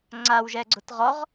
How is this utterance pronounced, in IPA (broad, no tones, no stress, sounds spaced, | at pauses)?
ŋ͡ǀ a w ʒ ɛ ɡ͡ǀ ʊ t ʁ ɔ ʁ